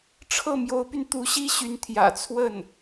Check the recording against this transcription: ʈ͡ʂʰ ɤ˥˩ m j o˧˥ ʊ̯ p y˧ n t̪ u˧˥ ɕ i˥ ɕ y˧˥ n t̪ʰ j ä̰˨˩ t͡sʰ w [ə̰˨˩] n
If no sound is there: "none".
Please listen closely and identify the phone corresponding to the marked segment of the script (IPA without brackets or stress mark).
ə˥˩